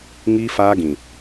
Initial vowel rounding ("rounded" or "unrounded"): unrounded